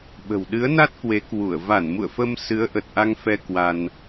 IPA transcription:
ɓ ə̤˨˩ w ɗ ɨ˨˦ ə̯ n a˦˥ t̚ k w e˨˦ k w u˧˩ ə̯ v a˧˩ n m ṵ˧˨ ə̯ f ə˧ m s ɨ˨˦ ə̯ ʔ ə˨˩ t̚ ʔ a˧ ŋ f ɛ˧ k w a˧ n

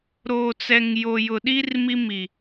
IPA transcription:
ɾ oː˨ t͡s ɛ˨ ŋ j o˨ j ʊ˨ ɗ i˦ r m i˦ m i˨

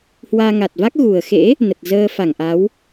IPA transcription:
h w aː˧ ŋ a˨˩ t̚ v a˦˥ k̚ ɣ u˨˩ ə̯ x ḛ˧˥ | n ə˨˩ t̚ z əː˧ f a˧˩ ŋ ʔ a˨˦ w

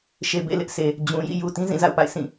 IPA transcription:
ʃ e˨ b ḛ˦˨ l ɪ˦ ʔ s e˨ | d͡ʑ ũ˨ j ḭ˦˨ j u˨ t ĩ˦ z ĩ˦˨ z a̰˦˨ ʊ̯ p a̰˦˨ ɪ̯ sʰ ĩ˦˨

